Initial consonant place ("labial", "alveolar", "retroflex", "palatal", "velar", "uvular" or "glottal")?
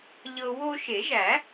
palatal